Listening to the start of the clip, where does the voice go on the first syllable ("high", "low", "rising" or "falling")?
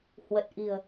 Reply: low